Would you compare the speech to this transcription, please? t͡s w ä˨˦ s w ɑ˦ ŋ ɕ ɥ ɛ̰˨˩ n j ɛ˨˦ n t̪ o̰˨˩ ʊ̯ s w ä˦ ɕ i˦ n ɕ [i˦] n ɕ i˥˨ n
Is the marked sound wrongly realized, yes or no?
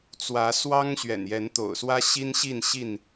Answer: yes